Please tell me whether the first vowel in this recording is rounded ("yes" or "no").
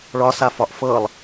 yes